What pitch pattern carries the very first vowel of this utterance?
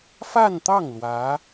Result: falling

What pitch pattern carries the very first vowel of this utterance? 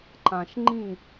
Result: low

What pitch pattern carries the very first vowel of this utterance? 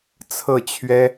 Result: falling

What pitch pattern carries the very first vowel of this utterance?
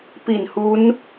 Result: low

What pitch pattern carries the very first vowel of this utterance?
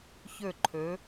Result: falling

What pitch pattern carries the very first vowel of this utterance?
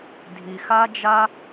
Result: low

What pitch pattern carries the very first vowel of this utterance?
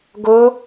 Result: rising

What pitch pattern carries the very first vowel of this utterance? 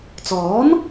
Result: rising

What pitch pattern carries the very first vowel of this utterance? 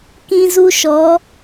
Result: high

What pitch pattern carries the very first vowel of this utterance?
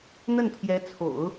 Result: falling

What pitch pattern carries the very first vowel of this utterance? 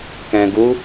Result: low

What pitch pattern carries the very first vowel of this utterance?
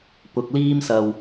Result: low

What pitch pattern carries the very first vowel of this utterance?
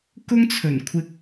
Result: high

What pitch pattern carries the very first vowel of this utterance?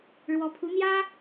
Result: rising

